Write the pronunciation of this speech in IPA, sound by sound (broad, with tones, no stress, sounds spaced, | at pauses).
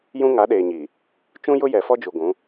j ũ˦ ŋ a˨˦ ɗ eː˨ ɲ iː˨ | t͡ʃ ũ˦ j ʊ˦ j ɛ˨ f ɔ˦ d͡ʒ u˨ ɡʷ ũ˨˦